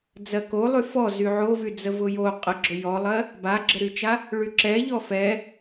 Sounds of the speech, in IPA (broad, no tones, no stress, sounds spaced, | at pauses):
d͡z ɜ k o lˠ y f ɔ z y ʕ o v y d͡z ə v ʊ j o qʼ ə ɡ͡ǁ ʊ j ɔ lˠ ɜ | b a ɡ͡ǁ ə ɾ y t͡ʃ a | ɭ y ǁ ɛ ʎ ɔ f ɛ